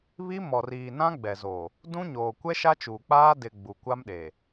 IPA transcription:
βi˦mɔ˨riː˨ nã˦ɡ͡bɛ˨zo˨ | dũ˦ɲoː˨ kʷɛ˦ʃa˦t͡ʃuː˨k͡paː˦ dɪ˨ ɡ͡bu˨kʷa˦mɗe˨

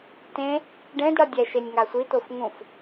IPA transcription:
tẽ | ɖẽdɽʌ dʲɛʃenʲ ŋasʷitof ŋũf

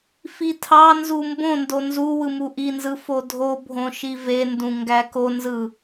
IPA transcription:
fitʰɑnzu mbõndo nzu wɯmuʔinzɯ fodʱobʱõ ʃivendũ ŋɡækonzɯ

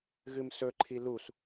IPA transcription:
ɣɨmsɵǃʰi lus

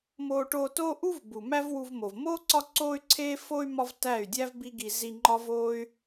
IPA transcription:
moː˧ʈoː˧toː˦ ʔu˦vbu˨ mæ˦vwu˧vmo˨v moː˦ ǀɒ˦ǀoː˦y̯ǀʰeː˦ fo˦y̯ mɒ˦v tæ˦˨y̯dʲæ˦vbi˦ɡi˧ zi˧ ŋ͡ǃɒ˦voː˦y̯

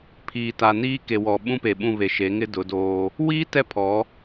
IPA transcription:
pʰiː˨ ta˨niː˦ke˨wɔ˨ ɓũ˦pe˨ɓũ˦˨ βe˨ʃe˨˦ ŋɪ˦dʊ˨˦doː˦ | wiː˦ tɛ˦pʰɔ˨˦

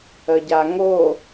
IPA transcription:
əɟaŋo

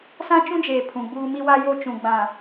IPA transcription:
sã˦t͡ʃũ˦d͡ʒeː˨ pʰũ˨ɡ͡buː˦ mi˦wa˦jo˦t͡ʃũ˨ ɡ͡bã˨

